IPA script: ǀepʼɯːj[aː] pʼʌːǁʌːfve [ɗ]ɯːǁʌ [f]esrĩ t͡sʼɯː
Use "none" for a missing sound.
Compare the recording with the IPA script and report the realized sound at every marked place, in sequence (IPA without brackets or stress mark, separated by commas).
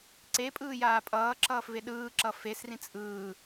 aː, ɗ, f